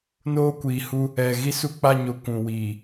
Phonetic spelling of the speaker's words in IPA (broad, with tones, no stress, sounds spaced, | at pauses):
n oː˦ kʷ iː˨ h u˦ | ɛ˨ ɣ i˦ s u˦ k͡p a˦˨ ɲ o˨ kʷ ũ˨ w iː˨